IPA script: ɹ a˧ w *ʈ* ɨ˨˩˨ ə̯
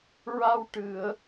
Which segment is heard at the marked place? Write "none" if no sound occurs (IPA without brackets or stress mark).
ʈ